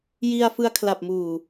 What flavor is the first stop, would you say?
aspirated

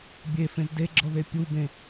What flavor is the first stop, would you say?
plain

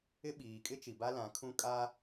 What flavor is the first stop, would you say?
implosive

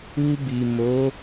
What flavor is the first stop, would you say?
plain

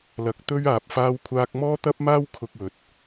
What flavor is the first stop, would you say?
plain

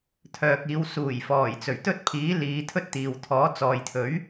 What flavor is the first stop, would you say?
aspirated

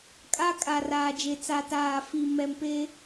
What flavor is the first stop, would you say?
ejective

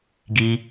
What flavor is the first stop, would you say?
plain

